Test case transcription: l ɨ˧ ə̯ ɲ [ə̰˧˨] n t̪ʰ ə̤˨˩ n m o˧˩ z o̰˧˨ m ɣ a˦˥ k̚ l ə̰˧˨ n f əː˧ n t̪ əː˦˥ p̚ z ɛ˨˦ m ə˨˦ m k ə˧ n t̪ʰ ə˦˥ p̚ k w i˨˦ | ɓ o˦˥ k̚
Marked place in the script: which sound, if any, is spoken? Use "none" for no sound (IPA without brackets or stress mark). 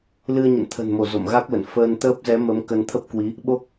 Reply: ə̰˧˨